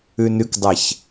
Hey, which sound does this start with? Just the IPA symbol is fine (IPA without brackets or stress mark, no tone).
ʉ